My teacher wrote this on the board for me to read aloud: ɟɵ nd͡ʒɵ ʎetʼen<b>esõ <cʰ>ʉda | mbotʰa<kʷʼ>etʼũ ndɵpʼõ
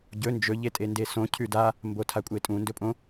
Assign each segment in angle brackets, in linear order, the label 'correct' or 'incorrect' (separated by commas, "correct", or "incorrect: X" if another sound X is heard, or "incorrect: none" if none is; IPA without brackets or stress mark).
incorrect: d, correct, correct